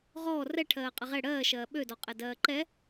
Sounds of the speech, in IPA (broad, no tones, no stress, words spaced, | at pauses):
ʁɔː rɛ ʈʰɜːqʼəʁɛ ɽɜːʃɜː ɓødɔ qʼɛdɜːǃɛ